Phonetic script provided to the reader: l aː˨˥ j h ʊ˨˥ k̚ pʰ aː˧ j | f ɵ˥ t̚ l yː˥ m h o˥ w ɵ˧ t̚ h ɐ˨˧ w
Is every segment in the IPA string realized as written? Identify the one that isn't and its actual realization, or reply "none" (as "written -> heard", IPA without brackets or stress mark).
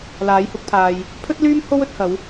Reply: f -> pʰ